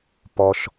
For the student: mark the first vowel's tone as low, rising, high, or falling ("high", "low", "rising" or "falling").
low